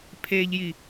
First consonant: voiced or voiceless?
voiceless